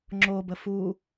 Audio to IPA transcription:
ŋ͡ǁobə fu

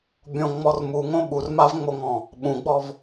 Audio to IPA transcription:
bʲõŋ͡mɔr muŋõ ɓurmavŋ͡moŋɔ̃ | ɓũɡ͡bɔv

